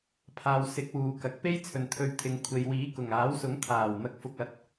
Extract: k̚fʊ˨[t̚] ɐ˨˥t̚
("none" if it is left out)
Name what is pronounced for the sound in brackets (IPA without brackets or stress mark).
k̚